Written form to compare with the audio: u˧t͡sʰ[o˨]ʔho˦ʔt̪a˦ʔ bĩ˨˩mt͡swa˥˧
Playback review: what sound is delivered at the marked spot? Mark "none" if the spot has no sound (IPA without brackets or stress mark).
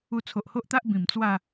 o˨